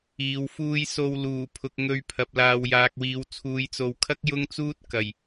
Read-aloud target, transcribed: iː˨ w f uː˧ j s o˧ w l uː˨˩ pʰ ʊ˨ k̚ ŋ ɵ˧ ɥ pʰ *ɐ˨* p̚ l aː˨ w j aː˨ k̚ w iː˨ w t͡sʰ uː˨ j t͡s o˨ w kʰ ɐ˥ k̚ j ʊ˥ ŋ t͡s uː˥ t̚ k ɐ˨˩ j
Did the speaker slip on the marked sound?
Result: no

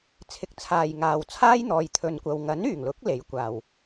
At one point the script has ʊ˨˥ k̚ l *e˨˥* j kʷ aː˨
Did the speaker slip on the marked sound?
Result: no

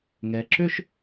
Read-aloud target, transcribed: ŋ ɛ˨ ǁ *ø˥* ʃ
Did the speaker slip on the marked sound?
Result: no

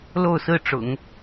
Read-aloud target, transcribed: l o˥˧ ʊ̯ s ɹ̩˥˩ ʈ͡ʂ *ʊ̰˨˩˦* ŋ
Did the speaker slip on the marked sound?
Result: no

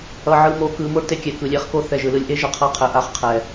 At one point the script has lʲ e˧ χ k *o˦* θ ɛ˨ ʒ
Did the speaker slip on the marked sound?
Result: yes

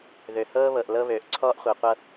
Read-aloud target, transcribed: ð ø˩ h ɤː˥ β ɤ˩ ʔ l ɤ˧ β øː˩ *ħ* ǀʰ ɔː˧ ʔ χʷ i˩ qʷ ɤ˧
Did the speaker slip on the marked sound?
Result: yes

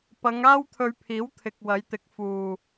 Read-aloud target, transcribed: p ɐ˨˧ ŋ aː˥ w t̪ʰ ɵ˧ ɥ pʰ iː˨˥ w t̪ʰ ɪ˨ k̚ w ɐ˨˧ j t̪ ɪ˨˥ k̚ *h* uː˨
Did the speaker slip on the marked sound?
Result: yes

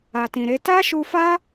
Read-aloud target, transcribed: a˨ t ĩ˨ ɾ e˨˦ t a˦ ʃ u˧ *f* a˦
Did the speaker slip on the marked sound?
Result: no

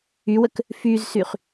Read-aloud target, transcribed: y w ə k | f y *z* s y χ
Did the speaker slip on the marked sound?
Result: no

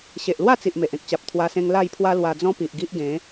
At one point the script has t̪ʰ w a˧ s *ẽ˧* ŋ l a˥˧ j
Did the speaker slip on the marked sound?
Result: no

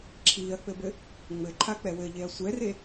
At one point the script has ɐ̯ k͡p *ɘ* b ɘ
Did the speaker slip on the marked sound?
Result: no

